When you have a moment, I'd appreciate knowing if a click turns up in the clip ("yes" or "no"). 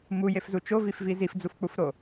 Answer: no